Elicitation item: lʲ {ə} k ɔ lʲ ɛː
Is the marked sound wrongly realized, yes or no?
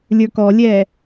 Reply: yes